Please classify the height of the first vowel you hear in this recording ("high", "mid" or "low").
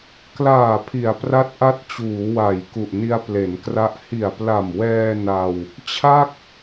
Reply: low